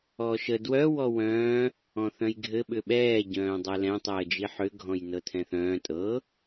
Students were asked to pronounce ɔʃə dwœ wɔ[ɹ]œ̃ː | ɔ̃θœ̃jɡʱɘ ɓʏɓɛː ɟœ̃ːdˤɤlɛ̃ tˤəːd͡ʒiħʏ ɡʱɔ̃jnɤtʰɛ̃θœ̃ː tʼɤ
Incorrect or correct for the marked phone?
incorrect: w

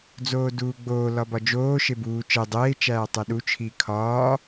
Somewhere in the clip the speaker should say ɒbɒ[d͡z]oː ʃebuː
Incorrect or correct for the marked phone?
incorrect: d͡ʒ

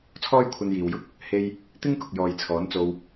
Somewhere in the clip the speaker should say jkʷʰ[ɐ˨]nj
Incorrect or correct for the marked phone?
incorrect: ɐ˧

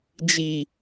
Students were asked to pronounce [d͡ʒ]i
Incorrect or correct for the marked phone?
correct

